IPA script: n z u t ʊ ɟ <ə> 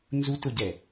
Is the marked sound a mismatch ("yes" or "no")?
yes